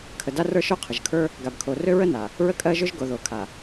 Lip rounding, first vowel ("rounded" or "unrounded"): unrounded